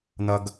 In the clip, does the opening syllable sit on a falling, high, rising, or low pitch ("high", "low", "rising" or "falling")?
high